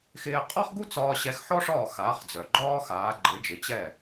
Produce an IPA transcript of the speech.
x ɪː˧ qʼ ɒ˥ χ ɡ u˥ t͡s ɒː˧ ɕ ɛ˧ x ħ ɔ˥ ʂ ɒː˥˩ x aː˩˥ χ d͡z œ˩ ɡ͡ǃ ɒː˥ x aː˩˥ ɡ͡ǃ ɪ˩˥ d͡ʒ ɪ˩˥ t͡ɕ ɛ˥˩

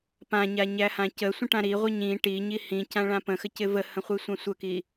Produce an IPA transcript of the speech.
p ã ɲ a ɲ æ h ã c ə sʷ ə̃ ʈ ã ɾ i ʁʷ ə ɲ ĩ ʈ i ɲ i h ĩ c ã ɭ ã p ə̃ x ə c ɪ v ə h ə̃ χʷ i sʷ ã sʷ ə k i

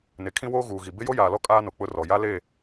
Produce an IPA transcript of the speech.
n e˨ kʰ ĩ˦ w oː˦ ɣ uː˨ ɣ i˨ b ɪ˦ j o˦ j aː˨ l ɔ˦ kʼ aː˦ n o˨ k͡p ʊ˦ r ɔ˨ j a˦ l e˦˨

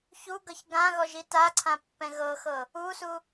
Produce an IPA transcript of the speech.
ç u ɡ ɤ ç ɡ ã ɣ ɔ ʒ i t a ǀʰ ã pː ɛ̃ ɣ ɤ x ɤ | u s u

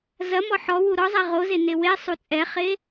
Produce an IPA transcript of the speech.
z ɐ m ɔ ħ ɔ w u ɾ ɔ zˤ ɛ ʁ o z e n e w e sˤ u t͡sʼ ɛ χ e

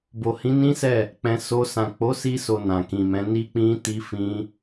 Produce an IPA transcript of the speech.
b o˨ h ĩ˨˦ n ĩ˦ s ɛ˦˨ | k͡p ɛ̃˧ s o˧ s ã˨ k͡p o˨˦ s i˧ s o˨ n ã˨ k ĩ˨ m ɛ̃˨˦ n i˧ k͡p ĩ˧ t i˧ f ĩ˧

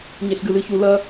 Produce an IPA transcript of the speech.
ɲ e ɬ ɡ ɨ l ɨ ç u l ɐ

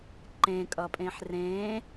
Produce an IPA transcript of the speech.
ǃ ẽ kʼ ʌ pʼ ẽ ħ r ẽ

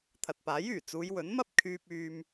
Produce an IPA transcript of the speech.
t̪ʰ ɐ˨ t̚ p aː˨˥ j yː˨˩ t͡s uː˨˧ j w ɵ˨˥ n m ɐ˥ p̚ kʰ yː˧ p̚ yː˧ m

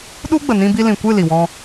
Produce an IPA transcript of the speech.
ɗ u˦ ɡ͡b ə˨ n ĩ˧ b i˧ l ĩ˨ kʷ ɨ˦˨ l i˨ w ɔ̃˧

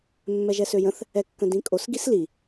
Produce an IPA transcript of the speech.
mː ɛ ʒ ɛ s ø j ə̃ θ | ɛ kː ə̃ d ĩ kʼ o s ɡ i s l i

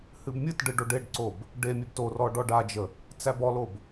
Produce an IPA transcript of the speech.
h ɨ b mʲ ɨ t ɖ ɨ ɖ o ɖ e ɖ ǀ o b | ɖ e mʲ e b t o r ɔ ɖ ɔ ɖ a d͡ʒ ə | t͡s æ b ɔ l o b

